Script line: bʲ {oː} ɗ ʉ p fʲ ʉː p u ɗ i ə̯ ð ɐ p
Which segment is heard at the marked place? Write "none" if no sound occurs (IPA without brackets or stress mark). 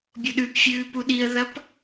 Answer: o